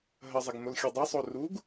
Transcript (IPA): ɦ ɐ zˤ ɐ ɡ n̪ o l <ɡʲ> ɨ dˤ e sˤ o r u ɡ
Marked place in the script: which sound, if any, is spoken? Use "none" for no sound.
xʲ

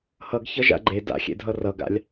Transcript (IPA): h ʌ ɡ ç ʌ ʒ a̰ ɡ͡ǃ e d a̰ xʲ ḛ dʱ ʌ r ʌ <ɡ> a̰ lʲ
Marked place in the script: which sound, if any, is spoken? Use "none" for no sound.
ɡ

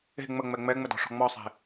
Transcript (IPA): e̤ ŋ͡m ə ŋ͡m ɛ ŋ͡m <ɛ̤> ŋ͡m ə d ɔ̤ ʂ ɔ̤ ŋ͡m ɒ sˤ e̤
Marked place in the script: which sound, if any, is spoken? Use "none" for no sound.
ɛ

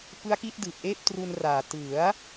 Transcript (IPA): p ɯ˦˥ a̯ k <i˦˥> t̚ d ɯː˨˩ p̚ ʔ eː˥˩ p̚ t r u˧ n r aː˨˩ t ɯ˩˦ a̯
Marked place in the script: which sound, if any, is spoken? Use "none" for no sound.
i˦˥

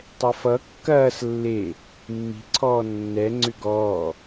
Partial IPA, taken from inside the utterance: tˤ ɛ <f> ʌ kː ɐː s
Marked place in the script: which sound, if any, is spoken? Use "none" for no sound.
f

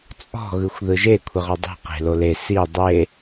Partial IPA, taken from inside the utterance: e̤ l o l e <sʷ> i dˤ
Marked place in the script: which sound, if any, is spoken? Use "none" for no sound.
s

